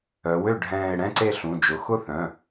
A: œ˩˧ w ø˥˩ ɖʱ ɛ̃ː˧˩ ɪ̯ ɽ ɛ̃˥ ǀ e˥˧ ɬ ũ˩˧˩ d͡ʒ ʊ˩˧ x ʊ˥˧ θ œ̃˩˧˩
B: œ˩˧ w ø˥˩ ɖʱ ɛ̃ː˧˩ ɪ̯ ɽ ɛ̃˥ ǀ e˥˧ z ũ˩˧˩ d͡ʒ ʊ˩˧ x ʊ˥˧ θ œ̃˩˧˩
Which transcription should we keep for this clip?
A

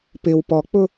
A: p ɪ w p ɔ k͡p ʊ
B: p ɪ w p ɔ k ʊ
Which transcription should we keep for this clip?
A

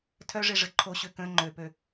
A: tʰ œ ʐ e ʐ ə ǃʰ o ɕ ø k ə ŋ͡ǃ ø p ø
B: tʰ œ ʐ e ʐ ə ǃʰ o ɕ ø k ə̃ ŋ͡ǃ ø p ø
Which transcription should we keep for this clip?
B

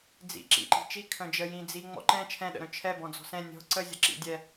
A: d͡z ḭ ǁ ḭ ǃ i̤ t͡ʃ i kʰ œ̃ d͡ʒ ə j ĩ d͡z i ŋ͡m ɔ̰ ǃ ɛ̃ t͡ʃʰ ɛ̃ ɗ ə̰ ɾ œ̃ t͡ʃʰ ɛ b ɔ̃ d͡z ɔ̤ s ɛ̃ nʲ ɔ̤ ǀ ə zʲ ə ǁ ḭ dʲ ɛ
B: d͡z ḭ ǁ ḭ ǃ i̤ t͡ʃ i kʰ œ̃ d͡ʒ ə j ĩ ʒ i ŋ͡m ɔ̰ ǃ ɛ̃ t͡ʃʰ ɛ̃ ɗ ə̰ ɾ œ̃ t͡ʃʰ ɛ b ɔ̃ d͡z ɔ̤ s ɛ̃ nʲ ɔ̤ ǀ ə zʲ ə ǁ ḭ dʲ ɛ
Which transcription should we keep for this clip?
A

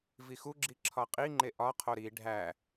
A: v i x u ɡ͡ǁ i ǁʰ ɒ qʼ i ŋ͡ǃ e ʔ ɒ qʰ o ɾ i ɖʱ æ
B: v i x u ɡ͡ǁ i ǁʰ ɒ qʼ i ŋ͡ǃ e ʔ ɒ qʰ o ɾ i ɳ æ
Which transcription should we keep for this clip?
A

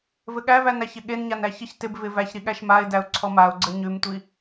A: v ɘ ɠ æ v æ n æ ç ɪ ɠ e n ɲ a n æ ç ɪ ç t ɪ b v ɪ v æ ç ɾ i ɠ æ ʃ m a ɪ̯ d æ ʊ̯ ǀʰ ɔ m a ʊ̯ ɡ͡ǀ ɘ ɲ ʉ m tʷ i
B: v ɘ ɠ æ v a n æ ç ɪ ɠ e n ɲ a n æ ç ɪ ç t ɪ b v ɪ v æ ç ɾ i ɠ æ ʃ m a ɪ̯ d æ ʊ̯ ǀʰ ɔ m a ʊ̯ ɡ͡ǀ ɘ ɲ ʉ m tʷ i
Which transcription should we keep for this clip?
A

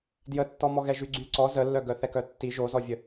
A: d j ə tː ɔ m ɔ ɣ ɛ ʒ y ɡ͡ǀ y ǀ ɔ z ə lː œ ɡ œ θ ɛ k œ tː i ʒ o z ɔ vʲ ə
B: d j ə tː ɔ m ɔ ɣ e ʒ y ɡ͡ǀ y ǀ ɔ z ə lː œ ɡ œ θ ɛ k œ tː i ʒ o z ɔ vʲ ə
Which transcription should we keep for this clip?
A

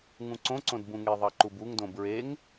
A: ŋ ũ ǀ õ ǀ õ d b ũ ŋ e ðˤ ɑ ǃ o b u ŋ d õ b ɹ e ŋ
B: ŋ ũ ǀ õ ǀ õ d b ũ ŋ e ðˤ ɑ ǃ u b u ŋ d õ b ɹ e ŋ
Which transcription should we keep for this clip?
B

